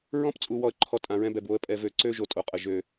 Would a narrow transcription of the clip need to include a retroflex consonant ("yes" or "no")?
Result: no